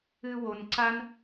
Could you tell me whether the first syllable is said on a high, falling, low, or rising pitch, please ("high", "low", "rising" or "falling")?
low